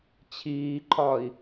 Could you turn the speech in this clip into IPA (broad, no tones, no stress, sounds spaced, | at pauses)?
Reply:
t͡ɕʰ iː ǃʰ ɒː i̯